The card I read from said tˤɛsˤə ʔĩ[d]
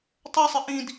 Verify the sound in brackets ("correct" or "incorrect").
correct